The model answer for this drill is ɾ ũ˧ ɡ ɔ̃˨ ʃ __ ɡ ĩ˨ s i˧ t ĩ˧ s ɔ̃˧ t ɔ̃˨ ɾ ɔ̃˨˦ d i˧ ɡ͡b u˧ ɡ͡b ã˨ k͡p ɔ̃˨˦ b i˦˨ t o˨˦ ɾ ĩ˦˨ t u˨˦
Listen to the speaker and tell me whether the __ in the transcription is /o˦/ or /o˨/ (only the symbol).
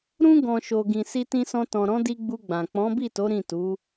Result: o˨